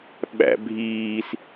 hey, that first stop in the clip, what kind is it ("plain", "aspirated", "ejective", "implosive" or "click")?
implosive